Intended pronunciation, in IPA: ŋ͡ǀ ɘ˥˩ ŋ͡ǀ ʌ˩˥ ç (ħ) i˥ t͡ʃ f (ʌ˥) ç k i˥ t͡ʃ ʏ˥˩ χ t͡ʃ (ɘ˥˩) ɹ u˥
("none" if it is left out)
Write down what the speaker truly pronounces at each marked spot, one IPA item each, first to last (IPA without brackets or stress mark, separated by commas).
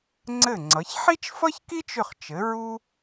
ħ, ʌ˥, ɘ˩˥